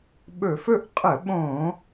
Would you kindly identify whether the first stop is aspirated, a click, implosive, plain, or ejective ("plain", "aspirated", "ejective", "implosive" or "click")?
implosive